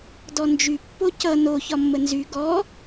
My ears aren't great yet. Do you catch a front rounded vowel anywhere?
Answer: yes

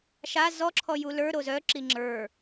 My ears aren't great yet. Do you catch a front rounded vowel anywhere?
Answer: yes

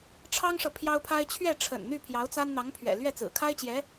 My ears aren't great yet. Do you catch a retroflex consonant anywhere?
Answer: yes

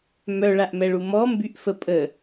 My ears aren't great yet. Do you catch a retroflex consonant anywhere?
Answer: yes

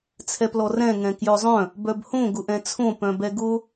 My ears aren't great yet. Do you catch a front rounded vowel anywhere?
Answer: yes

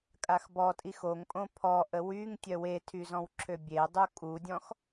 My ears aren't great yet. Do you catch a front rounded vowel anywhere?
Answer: yes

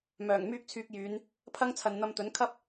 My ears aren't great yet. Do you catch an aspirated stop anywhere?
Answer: yes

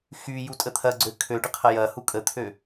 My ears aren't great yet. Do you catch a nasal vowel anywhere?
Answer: no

